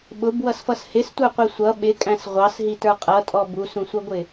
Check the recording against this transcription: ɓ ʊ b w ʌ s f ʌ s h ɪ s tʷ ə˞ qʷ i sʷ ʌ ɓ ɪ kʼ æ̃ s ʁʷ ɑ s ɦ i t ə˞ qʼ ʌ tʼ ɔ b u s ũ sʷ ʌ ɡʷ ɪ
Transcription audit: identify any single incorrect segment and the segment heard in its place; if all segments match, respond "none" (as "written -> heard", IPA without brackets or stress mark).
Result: none